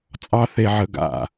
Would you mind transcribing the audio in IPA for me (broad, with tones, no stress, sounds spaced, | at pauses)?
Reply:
t͡sʼ ɑ˥ θ e˧ ʕ ə˧ ɡ a̰˥˩